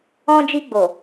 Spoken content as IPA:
ɔ̃˧d͡ʒi˧ɡ͡bo˨

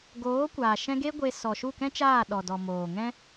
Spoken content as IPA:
ɡoː˨˦kʷaː˨ʃɛ̃˧ ɡe˦ɡʷe˧ sɔ˨ʃu˦˨kɛ̃˦t͡ʃaː˦˨ ɗɔ˨dɔ˨ moː˨ŋɛ̃˦

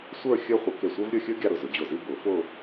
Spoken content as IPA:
sʷə˞˥˧ xʲə˞˥χʷə˨˩˦ ke˧˩sʷə˞˥vɾʲə˞˥˧xʲə˞˥ ɡʲa˥˧ɾʊ˧˩zʊ˨˩˦ d͡ʑʊ˧˩zi˥˧ bʊ˨˩˦fʊ˥˧

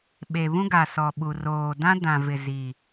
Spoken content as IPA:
ɓe˨βũ˦ɡa˨ sɔ˨ɓu˨roː˨ dã˦dã˨vɪ˨ zi˨

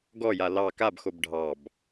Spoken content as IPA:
ɡɔja lɑ kabxob ɖʱɑb

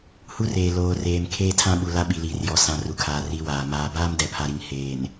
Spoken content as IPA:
hu˦reː˨ loː˨reː˨m kʰeː˦tʰã˦ɓu˨la˦ ɓi˨liː˨rjɔ˨ sã˨ ru˨kʰaː˨ ri˦waː˨ maː˨ baː˦mdɛ˨pʰa˨ɾi˨ŋ heː˨n

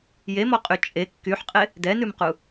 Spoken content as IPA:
jemɔqʼy t͡ʃʼe kːyħqʼe | dɛnʉmqu

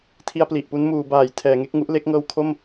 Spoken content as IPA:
tʰi˧a̯pli˨˩ʔpu˦˥nmuː˩˦ baː˩˦j tʰɛː˩˦ŋe˦˥k̚ŋu˦˥ʔle˦˥k̚ ŋɤː˧w kʰo˥˩m

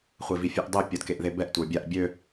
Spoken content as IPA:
χʷevifʲøʔdˤø pʲɔdkeʔðebɛʔ tʷə˞bʲaʔ bʲø

